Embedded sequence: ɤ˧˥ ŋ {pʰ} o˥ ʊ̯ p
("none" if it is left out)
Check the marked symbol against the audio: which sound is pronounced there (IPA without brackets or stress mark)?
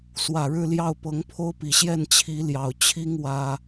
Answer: pʰ